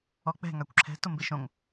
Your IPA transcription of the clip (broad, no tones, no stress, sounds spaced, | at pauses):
ɔ k͡p ɛ̤ ŋ a kʷ ǁʰ ɛ̤ t ʊ m b ɪ ʃ õ ŋ